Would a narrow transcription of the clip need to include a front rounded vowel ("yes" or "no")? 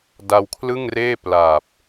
no